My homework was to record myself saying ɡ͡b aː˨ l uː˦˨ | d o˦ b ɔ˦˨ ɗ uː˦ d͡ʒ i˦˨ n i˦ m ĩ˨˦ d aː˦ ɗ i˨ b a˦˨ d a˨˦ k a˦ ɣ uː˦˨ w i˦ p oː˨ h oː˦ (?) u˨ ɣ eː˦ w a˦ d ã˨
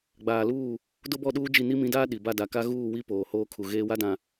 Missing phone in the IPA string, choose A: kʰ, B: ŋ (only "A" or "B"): A